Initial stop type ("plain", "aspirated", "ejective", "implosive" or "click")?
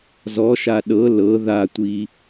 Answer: implosive